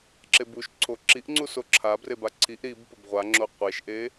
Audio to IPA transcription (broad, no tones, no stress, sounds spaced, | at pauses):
ǁ e b u ʃ ǀʰ o ǁ i ʔ ŋ͡ǀ u s o ǁʰ a b r e b a ǀʰ i ʔ ɾ i b p ɵ b ʁʷ a ŋ͡ǁ o qʷ e ʃ ʔ e